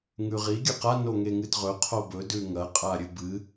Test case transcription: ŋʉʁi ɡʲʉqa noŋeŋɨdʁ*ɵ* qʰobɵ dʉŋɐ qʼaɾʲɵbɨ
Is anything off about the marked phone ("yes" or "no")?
no